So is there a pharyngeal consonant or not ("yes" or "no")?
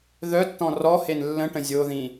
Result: no